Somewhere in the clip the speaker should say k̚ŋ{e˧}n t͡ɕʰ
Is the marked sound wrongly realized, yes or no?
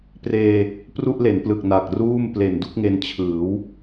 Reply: no